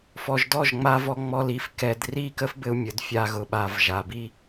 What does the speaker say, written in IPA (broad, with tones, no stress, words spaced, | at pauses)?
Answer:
fɔ˨ʒdɔ˦˨ʒŋ͡ma˧vɔ˧ ŋ͡mɔ˧li˨˦f kɛ˧d ri˦˨kə˦fbɘ˧u̯ mʲə˨d fʲa˧ɣʊ˨ɓa˨v ʒa˨bi˦